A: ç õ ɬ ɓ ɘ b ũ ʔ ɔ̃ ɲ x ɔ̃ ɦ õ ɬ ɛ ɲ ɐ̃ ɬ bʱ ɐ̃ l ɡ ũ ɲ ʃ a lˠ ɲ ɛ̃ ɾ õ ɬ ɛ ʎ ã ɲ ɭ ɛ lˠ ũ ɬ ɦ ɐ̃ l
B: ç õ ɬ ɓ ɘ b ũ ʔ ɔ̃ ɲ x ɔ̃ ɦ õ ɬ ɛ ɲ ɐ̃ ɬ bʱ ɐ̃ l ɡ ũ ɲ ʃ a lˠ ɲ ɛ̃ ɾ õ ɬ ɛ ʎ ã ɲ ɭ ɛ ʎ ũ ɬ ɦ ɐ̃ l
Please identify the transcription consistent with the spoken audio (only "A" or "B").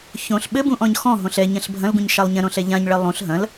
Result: A